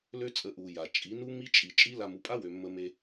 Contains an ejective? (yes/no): yes